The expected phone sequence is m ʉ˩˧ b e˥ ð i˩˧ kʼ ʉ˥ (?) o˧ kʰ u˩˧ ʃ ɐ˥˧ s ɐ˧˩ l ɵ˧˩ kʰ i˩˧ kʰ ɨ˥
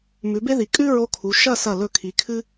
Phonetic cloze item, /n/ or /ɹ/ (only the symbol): ɹ